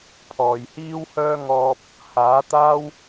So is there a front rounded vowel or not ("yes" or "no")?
yes